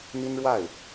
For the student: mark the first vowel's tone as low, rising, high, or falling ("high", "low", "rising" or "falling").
high